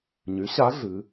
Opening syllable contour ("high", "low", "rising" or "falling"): rising